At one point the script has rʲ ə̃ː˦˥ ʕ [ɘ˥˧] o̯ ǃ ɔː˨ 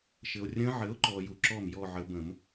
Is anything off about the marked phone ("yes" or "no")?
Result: yes